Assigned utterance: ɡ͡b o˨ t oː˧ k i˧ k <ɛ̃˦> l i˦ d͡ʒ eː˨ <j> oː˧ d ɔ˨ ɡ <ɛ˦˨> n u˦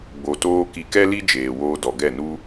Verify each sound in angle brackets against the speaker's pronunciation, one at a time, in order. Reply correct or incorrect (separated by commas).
incorrect, incorrect, correct